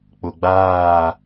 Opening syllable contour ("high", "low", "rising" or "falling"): low